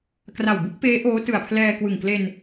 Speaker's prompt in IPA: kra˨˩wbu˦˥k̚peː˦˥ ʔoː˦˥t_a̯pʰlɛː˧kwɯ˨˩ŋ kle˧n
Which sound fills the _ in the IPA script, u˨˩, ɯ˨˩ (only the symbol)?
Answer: ɯ˨˩